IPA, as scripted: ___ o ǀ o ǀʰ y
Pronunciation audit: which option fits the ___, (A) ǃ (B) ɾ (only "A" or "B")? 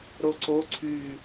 B